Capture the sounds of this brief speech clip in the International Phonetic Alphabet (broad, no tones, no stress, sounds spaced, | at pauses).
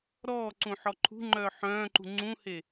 ɾ ɔː ǀ ũ ħ ɔ ǃʰ ṳ ŋ͡ǃ œː ħ œ̃ː ǃ ṳ ŋ͡ǀ ũ h e